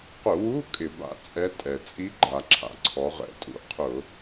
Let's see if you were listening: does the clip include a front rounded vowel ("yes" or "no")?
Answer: no